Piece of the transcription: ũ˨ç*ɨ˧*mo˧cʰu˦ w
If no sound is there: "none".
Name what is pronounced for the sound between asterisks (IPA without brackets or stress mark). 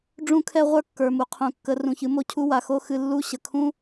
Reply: ɨ˨˦